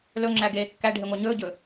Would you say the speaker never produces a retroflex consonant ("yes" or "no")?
no